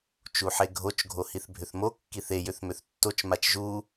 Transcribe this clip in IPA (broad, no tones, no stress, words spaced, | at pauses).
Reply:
t͡ʃuħeɡʱot͡ʃ ɡʱohiθbʱʏθmo kːiθe jʏθmʏθtːot͡ʃ mat͡ʃʒu